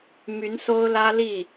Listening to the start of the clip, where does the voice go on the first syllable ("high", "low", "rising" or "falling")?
rising